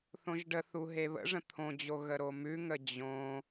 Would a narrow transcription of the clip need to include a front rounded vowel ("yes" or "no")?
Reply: no